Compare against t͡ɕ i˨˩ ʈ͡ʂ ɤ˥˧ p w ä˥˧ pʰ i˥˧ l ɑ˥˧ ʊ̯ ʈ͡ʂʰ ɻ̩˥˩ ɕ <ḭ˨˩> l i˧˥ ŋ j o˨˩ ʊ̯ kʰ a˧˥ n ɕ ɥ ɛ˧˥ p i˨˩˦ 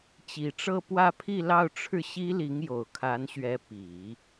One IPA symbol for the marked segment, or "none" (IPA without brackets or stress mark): i˥